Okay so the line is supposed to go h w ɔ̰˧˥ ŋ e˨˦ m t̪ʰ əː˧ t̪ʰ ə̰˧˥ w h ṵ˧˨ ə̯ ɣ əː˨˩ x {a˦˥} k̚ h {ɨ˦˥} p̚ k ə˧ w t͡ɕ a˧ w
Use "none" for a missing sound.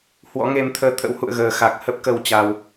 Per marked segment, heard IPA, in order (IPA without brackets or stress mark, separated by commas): a˨˩, ə˦˥